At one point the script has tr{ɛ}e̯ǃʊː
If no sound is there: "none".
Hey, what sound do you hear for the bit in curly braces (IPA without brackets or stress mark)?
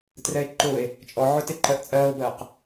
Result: ɛ